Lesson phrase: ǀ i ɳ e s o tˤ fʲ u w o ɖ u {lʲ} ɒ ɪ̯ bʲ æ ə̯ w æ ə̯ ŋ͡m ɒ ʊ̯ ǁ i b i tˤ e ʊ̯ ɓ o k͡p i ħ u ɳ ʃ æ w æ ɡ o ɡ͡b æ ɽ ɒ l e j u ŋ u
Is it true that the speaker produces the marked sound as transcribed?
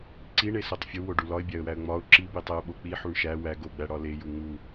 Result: no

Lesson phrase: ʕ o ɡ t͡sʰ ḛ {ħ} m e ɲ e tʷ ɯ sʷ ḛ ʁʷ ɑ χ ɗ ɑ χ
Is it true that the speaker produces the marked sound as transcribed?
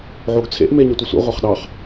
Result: no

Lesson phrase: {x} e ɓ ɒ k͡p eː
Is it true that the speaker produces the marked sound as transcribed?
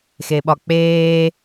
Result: yes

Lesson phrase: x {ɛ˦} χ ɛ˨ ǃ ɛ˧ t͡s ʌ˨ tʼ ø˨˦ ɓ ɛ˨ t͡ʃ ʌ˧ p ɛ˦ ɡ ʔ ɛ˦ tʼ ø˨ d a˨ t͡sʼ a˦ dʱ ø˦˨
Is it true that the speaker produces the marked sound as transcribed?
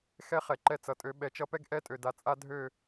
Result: yes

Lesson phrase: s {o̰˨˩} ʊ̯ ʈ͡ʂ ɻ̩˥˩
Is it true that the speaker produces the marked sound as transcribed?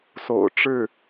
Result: yes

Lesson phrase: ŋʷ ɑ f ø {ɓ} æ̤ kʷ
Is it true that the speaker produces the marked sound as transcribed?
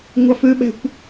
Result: yes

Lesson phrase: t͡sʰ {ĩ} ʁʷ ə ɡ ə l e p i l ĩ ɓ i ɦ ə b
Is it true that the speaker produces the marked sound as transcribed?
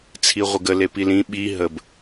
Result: no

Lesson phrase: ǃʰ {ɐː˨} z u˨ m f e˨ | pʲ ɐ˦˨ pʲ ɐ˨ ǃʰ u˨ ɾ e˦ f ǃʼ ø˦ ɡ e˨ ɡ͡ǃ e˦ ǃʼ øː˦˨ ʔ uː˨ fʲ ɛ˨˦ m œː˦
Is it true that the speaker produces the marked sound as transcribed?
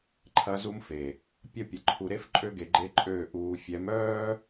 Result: no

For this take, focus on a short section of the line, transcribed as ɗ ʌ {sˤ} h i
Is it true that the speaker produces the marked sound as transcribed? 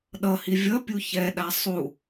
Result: no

